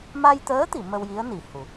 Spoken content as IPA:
ma˧jt̪əː˧˥t̪i˨˩˨ mə˧wji˧˥ə̯ ni˨˩ hu˨˩˨

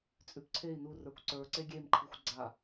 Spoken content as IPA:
t͡sʼʉpǀʰei̯ nu rə˞kʷǀə˞ ǀeɡʲem ǃʰixʷɡ͡ǀa

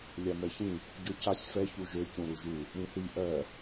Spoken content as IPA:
lʲamɛçĩ | ɟøcasʲ fɛ çuʒø cũɾuʒu | ɾĩθi ʔɜ

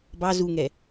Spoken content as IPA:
bɑ zuŋɛ

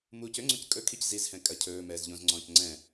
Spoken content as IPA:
muːcøŋ͡ǀõc kʼɵkʰic zizhɛ̃ kʼɐ cʰɵː mɛːzʎõzŋ͡ǀɔ̃ːc ŋ͡ǀɛ̃

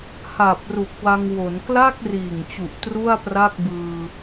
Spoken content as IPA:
ha˨˩p̚ ru˨˩k̚wa˧ŋwo˩˦n kla˥˩k̚ riː˨˩ŋt͡ɕu˨˩ʔ tru˥˩a̯pra˥˩k̚bɯː˧

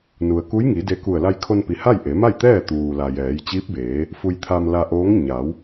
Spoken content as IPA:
nu˩ə̯ku˧˥jŋi˩˧ de˧ku˧˩ə̯ la˧jkʰo˧npi˩ ha˥˨jʔe˩˧ma˥˨jt̪ɛː˥˨ t̪uː˩la˩ jɛː˩˧jt͡ɕi˧˥p̚beː˩˧ | fu˧jt̪ʰa˧mla˧ʔoː˧˥ŋ ɲa˩˧w

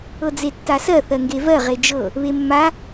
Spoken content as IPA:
ɤd͡zetːasɜ θɜŋɡevɜ ʁed͡ʒɤ | βemːa

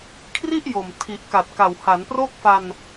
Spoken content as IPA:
kʰri˥˩ʔ jo˨˩mtʰi˨˩ʔ ka˨˩t̚ka˨˩w ha˩˦npro˥˩k̚fa˧n

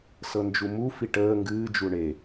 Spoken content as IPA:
sɤnd͡ʒumufi ʈəː ŋɡɨːd͡ʒu ɳe

